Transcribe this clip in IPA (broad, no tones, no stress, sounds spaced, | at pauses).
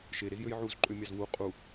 ʃ e ɾ e z j ø j ʕ u z ǃʼ ø mʲ ɑ z w u qʼ u